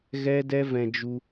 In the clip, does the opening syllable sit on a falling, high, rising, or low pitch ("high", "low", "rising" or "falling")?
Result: high